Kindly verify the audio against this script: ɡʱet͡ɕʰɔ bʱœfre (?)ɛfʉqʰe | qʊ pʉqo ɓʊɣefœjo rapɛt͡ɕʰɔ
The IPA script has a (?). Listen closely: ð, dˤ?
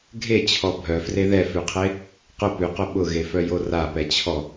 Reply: ð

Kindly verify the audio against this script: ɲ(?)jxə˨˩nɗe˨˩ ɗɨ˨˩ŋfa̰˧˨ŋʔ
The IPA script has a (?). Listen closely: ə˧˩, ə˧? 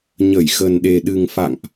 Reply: ə˧˩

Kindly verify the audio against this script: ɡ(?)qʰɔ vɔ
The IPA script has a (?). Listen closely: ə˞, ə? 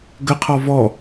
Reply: ə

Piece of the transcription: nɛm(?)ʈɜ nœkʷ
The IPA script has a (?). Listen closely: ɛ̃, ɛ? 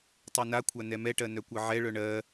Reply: ɛ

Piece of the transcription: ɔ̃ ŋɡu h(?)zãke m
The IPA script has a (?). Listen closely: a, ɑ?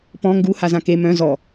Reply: a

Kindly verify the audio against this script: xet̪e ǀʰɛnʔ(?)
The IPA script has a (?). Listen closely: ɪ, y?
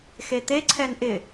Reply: ɪ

